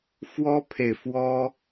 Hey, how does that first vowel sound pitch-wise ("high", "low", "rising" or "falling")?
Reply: high